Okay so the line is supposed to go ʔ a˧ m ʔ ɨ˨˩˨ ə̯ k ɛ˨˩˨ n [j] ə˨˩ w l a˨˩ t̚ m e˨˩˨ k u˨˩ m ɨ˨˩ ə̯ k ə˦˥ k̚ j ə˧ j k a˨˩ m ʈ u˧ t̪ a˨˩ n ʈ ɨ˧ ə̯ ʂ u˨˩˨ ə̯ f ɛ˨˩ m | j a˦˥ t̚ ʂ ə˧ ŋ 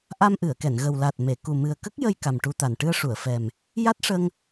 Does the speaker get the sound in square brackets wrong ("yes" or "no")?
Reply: yes